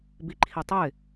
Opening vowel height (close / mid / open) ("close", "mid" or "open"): close